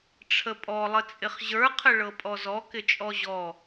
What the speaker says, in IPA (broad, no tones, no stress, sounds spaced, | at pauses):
ʈ͡ʂʰ ə pʼ ɔ lˠ ə t͡sʼ ɪ χ ʑ ə˞ qʰ ə ɭ ɤ pʼ ɔ z ɔ k ɪ t͡ʃʼ ɔ ʑ ɔ